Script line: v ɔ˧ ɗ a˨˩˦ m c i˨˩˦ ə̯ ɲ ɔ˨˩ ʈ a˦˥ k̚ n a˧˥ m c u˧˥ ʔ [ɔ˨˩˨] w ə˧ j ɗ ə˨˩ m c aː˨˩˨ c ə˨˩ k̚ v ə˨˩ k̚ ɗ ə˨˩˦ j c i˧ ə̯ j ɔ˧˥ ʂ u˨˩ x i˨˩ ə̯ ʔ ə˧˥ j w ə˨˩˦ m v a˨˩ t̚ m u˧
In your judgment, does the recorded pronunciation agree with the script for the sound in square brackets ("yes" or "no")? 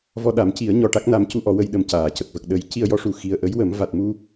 no